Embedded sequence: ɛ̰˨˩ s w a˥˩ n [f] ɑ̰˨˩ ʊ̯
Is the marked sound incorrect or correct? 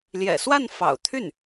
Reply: correct